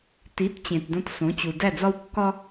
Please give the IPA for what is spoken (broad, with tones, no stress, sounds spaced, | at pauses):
t i˩˥ t t͡ɕ ẽ˩ t d õ˧ t s õ˩˥ t͡ɕ u˩ d æ˥˩ d͡z ɒ˥ w kː ɒ˥